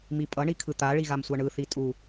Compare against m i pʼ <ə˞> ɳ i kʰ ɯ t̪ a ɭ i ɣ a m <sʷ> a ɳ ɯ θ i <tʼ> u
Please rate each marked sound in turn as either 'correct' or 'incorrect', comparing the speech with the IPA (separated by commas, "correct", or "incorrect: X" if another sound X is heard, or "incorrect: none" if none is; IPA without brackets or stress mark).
incorrect: ʌ, correct, correct